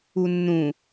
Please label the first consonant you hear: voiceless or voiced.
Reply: voiced